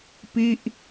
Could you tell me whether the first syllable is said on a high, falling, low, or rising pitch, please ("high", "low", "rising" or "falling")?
falling